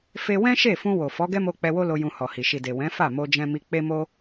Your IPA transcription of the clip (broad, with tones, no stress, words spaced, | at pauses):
fe˧ wɛ̃˦ʃe˦˨fũ˧ wo˨ fɔ˨˦ɡɛ˦mo˧ k͡pɛ˧wo˦lo˧ jũ˧hɔ˨hi˨ ʃi˨de˨ wɛ̃˨˦fa˦˨mo˧d͡ʒɛ̃˧ mi˧ k͡pe˦mo˦